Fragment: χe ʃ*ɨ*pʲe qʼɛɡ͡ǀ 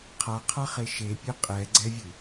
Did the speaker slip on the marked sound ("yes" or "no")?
yes